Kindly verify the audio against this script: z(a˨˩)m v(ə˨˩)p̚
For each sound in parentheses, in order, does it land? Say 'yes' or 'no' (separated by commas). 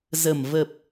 no, yes